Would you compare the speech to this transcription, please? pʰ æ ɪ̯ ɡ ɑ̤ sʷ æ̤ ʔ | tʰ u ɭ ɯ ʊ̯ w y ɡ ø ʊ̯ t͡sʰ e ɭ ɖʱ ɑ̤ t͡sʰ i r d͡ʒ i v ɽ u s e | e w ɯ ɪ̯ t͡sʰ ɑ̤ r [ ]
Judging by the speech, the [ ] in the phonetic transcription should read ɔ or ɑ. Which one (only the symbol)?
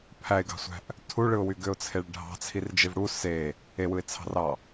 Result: ɑ